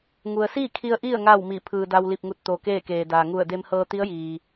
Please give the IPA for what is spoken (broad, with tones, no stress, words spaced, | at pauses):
ŋu˩ə̯ siː˥˨kʰi˧ə̯ ʔi˥˨ə̯ ŋaː˥˨wmi˧˩ pʰɯː˩da˧wli˧˩p̚ŋu˧˩t̚ t̪o˩ keː˥˨keː˩daː˩ ŋu˧˩ə̯ de˧mhɤː˧t̪i˧˥ə̯ jiː˩